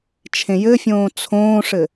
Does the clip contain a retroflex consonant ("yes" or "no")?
yes